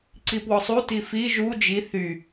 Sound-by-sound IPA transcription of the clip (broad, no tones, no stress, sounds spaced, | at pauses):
ǀ i p w ɔ sˤ u t i f i ʒ u d͡ʒ i θ y